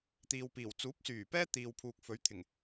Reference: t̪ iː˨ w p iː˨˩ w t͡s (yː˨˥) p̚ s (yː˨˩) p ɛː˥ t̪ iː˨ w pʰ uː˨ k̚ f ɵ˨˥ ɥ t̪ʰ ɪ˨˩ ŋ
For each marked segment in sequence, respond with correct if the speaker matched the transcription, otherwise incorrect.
incorrect: uː˨˥, correct

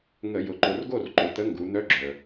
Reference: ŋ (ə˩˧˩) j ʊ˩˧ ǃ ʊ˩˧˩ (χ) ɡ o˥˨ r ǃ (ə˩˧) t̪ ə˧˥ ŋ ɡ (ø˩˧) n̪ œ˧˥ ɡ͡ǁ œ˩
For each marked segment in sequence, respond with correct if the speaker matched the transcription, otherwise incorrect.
incorrect: ə˧˩˧, incorrect: r, incorrect: ʊ˩˧, incorrect: u˩˧

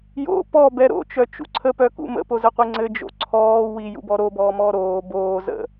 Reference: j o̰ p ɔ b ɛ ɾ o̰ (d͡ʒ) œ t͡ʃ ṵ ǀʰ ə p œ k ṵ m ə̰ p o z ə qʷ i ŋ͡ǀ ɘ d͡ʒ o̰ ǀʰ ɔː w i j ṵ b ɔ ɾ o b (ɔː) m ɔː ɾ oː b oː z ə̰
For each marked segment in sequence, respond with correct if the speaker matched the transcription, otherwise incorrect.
incorrect: t͡ʃ, correct

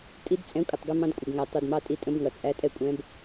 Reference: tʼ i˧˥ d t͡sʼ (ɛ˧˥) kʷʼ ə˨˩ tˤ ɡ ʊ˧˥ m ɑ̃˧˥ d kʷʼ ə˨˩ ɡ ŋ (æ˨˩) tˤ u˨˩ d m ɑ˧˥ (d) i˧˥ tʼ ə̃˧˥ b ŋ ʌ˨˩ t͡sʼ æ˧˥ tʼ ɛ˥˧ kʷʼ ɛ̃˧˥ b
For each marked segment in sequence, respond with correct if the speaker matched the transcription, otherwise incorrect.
incorrect: ɛ̃˧˥, correct, incorrect: tʼ

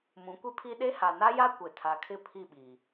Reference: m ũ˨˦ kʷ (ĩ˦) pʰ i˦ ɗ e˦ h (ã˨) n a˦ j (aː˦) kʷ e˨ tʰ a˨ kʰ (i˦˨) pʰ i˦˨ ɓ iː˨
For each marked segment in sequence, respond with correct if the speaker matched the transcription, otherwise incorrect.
incorrect: i˦, incorrect: a˨, incorrect: a˦, incorrect: ɪ˦˨

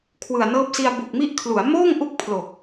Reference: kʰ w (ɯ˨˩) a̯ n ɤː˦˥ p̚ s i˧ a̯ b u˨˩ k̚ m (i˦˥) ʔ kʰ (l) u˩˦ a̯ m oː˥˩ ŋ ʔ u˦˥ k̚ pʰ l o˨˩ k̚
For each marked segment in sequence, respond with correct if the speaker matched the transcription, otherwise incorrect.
correct, correct, correct

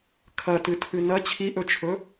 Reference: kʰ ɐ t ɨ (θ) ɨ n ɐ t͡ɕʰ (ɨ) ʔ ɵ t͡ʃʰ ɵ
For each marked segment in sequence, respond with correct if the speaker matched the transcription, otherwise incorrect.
incorrect: tʰ, incorrect: i

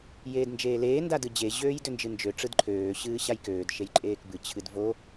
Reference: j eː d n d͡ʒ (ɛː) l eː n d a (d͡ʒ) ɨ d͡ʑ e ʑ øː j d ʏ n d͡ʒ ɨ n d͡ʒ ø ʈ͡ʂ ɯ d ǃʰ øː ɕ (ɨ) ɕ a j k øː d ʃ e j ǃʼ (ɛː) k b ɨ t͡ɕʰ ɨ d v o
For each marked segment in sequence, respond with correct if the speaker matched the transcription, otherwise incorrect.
incorrect: eː, incorrect: d, incorrect: ɨː, incorrect: eː

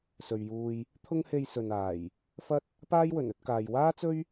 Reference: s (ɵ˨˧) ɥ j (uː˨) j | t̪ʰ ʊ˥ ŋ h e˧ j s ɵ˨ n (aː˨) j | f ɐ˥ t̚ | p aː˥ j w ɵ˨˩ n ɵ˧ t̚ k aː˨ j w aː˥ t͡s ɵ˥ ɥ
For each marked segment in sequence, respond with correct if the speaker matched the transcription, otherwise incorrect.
incorrect: ɵ˨, incorrect: uː˧, incorrect: aː˨˩

